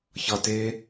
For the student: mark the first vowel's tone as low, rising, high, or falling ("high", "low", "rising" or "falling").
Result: low